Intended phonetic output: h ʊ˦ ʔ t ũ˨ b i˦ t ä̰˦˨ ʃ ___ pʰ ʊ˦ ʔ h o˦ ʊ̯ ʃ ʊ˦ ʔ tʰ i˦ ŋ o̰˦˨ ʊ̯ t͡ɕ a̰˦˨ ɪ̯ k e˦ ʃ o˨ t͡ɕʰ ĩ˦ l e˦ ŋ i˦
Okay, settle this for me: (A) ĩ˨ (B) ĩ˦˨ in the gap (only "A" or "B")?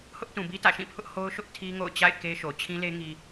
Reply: B